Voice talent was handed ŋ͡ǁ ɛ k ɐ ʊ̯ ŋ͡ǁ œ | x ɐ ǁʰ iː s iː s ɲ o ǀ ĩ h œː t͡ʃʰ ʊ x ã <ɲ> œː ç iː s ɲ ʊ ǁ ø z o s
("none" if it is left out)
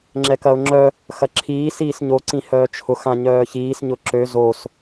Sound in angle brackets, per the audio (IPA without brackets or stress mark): ɲ